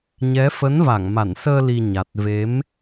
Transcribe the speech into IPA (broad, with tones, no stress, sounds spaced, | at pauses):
ɲ ɛ˨˦ f ə˨˦ n v a˧˩ ŋ m a˧˩ n s əː˧ l i˧ ɲ a˨˩ t̚ v e˨˦ m